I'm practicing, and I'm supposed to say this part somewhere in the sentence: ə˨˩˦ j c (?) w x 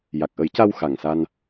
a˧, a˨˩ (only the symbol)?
a˧